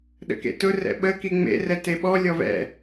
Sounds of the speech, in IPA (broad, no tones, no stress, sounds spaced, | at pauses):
ɗ ə̰ k ḛ t ʊ r ɛ̰ ɓ ə k i ŋ͡m ḛ r ɛ t e ɓ ɔ lʲ ɔ v ɛ̰